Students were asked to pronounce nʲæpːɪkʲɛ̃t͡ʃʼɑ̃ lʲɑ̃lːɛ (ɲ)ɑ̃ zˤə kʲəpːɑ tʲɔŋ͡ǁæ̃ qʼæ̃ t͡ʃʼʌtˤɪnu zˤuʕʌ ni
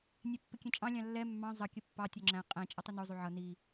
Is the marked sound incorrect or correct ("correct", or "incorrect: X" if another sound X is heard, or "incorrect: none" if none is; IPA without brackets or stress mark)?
incorrect: mː